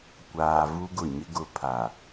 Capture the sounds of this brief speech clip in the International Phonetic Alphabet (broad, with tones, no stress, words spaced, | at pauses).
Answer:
kʷaː˨ vu˦ɡʊ˦˨ɲɪ˦ ɡʊ˦ pʰa˨